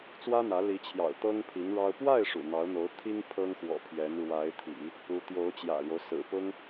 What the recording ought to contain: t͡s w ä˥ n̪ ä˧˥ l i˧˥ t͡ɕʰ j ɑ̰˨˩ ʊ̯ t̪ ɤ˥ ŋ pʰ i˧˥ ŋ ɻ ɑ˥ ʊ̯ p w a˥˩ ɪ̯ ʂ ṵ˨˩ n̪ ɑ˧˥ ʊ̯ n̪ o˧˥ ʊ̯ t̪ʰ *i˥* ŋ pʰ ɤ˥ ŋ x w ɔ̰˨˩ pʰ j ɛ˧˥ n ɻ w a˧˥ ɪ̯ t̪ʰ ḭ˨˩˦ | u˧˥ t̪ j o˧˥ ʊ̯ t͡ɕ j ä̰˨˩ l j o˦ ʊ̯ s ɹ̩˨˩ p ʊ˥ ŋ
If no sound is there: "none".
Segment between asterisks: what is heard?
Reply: i˥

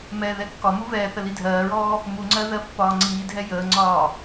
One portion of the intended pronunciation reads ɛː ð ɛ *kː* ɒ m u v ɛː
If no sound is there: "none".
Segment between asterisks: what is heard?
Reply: kː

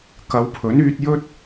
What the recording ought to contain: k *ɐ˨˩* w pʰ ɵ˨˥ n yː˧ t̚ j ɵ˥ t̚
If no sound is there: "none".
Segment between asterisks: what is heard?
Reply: ɐ˨˧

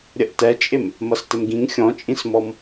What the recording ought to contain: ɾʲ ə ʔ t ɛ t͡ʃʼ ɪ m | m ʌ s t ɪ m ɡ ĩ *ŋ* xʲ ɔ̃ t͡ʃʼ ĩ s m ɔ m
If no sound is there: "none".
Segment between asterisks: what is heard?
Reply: ŋ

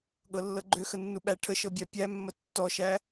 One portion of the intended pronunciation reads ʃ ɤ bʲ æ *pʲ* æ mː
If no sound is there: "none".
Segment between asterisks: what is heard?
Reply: pʲ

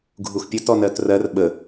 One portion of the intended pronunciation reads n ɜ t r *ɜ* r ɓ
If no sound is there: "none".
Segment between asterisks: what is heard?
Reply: ɜ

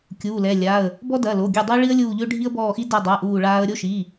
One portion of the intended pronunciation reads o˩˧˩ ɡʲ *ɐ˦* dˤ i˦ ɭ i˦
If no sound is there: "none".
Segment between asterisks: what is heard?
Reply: ɐ˦˨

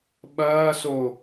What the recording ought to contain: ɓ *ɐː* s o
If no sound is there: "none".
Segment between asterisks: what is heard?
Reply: ɐː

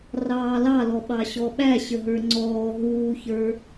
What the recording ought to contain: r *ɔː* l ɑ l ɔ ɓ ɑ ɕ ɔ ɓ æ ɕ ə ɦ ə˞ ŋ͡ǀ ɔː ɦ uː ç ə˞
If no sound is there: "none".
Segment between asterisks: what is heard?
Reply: ɑː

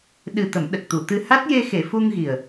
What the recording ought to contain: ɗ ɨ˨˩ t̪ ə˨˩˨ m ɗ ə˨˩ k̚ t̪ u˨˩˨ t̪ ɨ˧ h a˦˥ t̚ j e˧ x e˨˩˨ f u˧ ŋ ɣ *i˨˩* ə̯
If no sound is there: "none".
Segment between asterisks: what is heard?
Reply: i˨˩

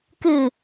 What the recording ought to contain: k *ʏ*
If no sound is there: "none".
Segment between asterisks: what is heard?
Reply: ɨ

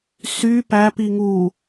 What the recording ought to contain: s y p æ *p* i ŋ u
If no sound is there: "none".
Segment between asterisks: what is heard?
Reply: p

